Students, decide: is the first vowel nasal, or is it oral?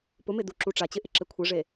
oral